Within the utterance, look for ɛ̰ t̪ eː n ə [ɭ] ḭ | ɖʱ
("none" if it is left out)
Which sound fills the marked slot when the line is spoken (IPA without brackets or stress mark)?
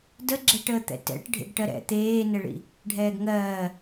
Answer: ɭ